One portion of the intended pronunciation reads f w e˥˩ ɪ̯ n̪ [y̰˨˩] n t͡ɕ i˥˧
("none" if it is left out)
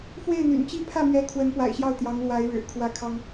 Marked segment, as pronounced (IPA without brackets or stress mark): y̰˨˩